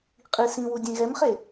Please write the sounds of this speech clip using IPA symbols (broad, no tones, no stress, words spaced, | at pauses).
qʼi sĩwu dʲẽɣɛmχe